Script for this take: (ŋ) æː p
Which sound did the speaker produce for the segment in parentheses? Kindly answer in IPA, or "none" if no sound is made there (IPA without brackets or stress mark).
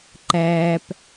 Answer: ǃ